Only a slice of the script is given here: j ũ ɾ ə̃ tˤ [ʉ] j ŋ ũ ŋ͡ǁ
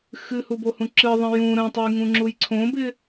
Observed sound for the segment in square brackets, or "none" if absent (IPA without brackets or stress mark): ʉ